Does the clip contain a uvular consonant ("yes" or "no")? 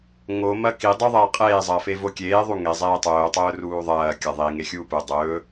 yes